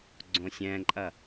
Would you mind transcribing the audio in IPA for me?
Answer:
ɡ͡ǀ õ sʲ ɛ̃ ǃʼ ɐ

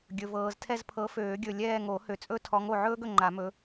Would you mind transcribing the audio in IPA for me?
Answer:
ɡʲ ɵ˨ v ɤː˨ z tʰ ɛ˦˨ z pʰ ɤ˨˦ f øː˨˩˦ ɡʲ ɵ˨ lʲ ɛː˦˨ ŋ o˨˩˦ h ø˨ t͡sʼ ɵ˦ tʰ ɔ˨˦ ŋ o˨ ʕ ɵː˦ ɡ ɵ˨ ŋ͡ǃ a˨˩˦ m ɵ˨˦

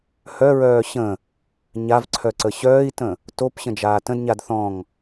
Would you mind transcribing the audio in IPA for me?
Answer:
h œ ɹ œː ɕ ə̃ | ɲ a v ǀʰ œ ǀ ə ɕ œː i̯ t ə̃ | t o p ɕ ə̃ d͡ʒ aː t ə̃ d ɲ a d θ ɔ̃ ŋ

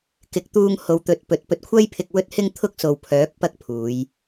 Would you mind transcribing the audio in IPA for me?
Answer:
k ɪ˨˥ k̚ t̪ uː˧ ŋ h o˨˧ w t̪ ɵ˨˥ t̚ p ɵ˨ t̚ p ɵ˧ t̚ kʷʰ ɐ˥ j pʰ ɪ˧ k̚ w ɵ˥ t̚ h ɪ˥ ŋ t̪ʰ ʊ˥ k̚ s o˨ w pʰ œː˨˥ k̚ p ɐ˥ k̚ pʰ uː˨˧ j

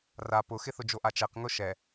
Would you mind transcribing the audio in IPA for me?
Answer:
r a p ʊ x ɪ θ ʊ d͡ʒ o ʔ a t͡ʃ ɛ q ŋ ʊ ʃ ɛ

